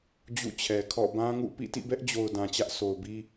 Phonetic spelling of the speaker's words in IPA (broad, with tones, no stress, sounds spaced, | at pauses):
d͡ʑ ṵ˦˨ t͡ɕʰ ɛ˨ kʰ ɔ̰˦˨ b ã˦ ŋ ṵ˦˨ p ḭ˦˨ t ḭ˦˨ b ɛ˦ ʔ d͡ʑ o˨ ʊ̯ d ã˨ t͡ɕ ä˦ ʔ s o˨ ʊ̯ b i˦